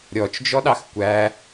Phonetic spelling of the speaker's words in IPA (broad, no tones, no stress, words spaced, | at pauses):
ɾʲɔt͡ʃd͡ʒɔɗɑx kʷæ